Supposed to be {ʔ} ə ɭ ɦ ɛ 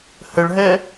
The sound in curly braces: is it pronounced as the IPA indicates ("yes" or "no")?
no